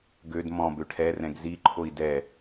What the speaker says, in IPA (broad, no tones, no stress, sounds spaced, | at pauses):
ɡ ø d m ɔ̃ b ø ʈʰ ɛ r ɛ̃ ɡ z i ǃʰ o i̯ d ɛ